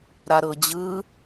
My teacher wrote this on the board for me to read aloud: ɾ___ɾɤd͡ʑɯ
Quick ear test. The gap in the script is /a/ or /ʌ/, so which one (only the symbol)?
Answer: a